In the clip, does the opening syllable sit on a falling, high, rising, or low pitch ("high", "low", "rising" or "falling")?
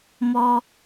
high